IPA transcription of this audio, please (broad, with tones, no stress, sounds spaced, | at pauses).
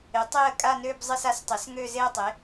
ɪ˩˥ tˤ e˥˧ ə̯ kʼ a˥˧ n ø˥˧ b zˤ ɪ˥˧ s a˩˥ s tˤ ɪ˩˥ s ŋ ø˥˧ z e˥˧ ə̯ tˤ e˩˥